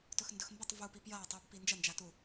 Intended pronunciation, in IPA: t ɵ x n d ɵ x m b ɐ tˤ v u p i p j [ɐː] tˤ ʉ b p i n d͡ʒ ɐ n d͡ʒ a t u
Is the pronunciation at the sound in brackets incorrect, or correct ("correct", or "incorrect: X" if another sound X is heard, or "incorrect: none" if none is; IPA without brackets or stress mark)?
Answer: correct